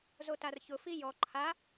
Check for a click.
present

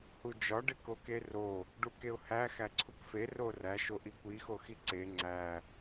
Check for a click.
present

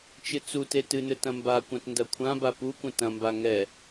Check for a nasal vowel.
present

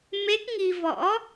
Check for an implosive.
absent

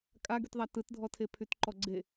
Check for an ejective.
present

